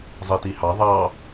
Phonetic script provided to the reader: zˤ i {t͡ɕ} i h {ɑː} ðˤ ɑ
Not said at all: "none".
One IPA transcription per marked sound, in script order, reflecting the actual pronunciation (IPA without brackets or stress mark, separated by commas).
t, ɑ